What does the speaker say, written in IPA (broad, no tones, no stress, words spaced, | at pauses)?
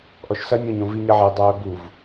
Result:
ʔɔʃsɐnʲõɲõ viɲɐʕɛ dˤœːbuv